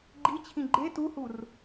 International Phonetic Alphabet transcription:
ɡ͡ǃit͡ɕʰĩ ɡ͡ǃe tuhur

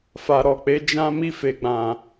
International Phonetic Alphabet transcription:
fa˨ ɾɔ˨k͡pe˨˦ d͡ʒã˦ mi˦˨fe˨ɡ͡bã˨

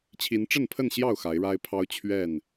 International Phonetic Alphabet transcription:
t͡ɕʰi˨˦nʈ͡ʂə˥˨npʰə˥˨nɕjɑ˥˨ʊ̯ xa˨˦ɪ̯ɻa˦ɪ̯ pʰɑ˦ʊ̯t͡ɕʰɥɛ˥˨n

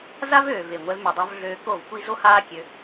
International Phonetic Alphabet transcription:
za˦vøː˨ve˨ ŋʷɛ˧vmø˨dˤo˧v ɮøː˧ko˦˨vkʷi˦ zo˦haː˦kʲø˧

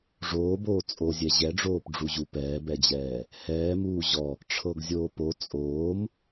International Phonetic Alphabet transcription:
ʐoːboː t͡sʼozʲɛ ʑɛɖ͡ʐoːpɖ͡ʐuʑu pɛːbɛd͡ʑɛː | hɛːmuː ʑɔ | ʈ͡ʂʰɤɡzʲoːpo t͡sʼoːm

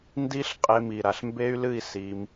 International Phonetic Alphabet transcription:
ndi˦˥ɬ qʼe˦˥mi˧ɾa˧ɬ mbe˦˥y̯lɨ˥˧i̯ si˦˥m

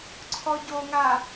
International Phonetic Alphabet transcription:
ǀʰɔɟoŋa

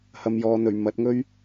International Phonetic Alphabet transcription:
hɐ˨mjɔː˨n̪ɵ˨˩ɥ mɐ˨˥t̚ŋɵ˥ɥ

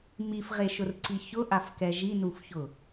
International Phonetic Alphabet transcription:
mifʁeʃʊrǀi çʊʔafkɛ ʒinufçʊ

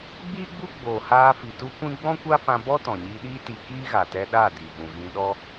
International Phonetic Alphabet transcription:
ɡ͡biː˦ɡ͡bu˦ ɡ͡boː˨haː˧ fi˨tu˦kʷĩ˦ ɡ͡bɔ̃˦kʷa˦fã˧ bɔ˦ tɔ̃˨ɲiː˧ɗiː˦ ti˧ kiː˦ɣa˨tɛ˧ ɗa˦˨di˨vũ˨ ɣĩ˧ɗɔ˦

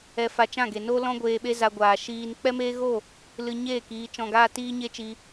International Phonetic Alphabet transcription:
ɛ˧ fa˧t͡ʃã˦˨ɡe˨ no˦lɔ̃˦ ɡʷeː˧ɓe˦ za˧ɡʷaː˨ ʃiː˧n k͡pɛ˦meː˦ɣo˦˨ | lɨ˧ɲeː˦˨k iː˧t͡ʃɔ̃˧ɡaː˦ tiː˦ɲe˦t͡ʃi˧

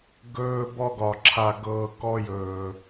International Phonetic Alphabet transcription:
ɡɵː˦bɔ˦ɡɒ˨ ǁʰa˨ɡɤː˨ kɔ˦jɵː˨

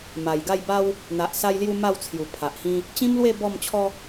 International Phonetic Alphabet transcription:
ma˨˩jɡa˥˧jba˦w | n̪a˨ʔsa˧jlju˧ ma˥˧wt͡sʰju˨˩ pʰa˨ʔhĩ˦ | t͡ɕĩ˦mlwe˥˧ bɔ˥˧mt͡ɕʰɔ˦

